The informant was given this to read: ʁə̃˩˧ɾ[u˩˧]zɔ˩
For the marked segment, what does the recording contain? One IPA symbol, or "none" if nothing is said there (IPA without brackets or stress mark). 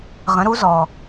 u˩˧